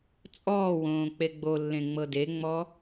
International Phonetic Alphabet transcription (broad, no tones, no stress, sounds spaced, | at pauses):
t͡sʼ ɔː w õː k͡p e ɡ͡b o lː ẽ ŋ͡m ɤ d e ŋ͡m ɔ